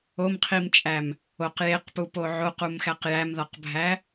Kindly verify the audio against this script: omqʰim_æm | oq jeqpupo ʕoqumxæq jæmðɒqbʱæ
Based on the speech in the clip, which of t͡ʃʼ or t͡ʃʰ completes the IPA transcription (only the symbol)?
t͡ʃʼ